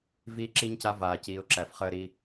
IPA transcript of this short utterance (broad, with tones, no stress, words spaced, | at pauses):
viː˦ǁi˦ɲca˦ vaː˨ciː˨ʊ̯ ǁæ˨fχəː˦ɾi˦